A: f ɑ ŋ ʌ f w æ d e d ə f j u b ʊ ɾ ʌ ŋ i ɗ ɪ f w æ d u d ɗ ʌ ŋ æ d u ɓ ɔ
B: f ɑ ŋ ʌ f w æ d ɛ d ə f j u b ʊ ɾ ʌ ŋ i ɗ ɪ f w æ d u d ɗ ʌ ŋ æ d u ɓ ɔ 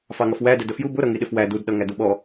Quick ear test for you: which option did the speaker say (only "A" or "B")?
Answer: B